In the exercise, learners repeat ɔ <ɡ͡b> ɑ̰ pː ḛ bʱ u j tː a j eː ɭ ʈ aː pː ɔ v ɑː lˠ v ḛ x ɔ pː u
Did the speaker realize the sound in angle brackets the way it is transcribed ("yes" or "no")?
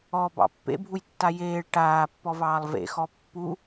no